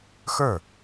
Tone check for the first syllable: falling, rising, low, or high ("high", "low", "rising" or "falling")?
falling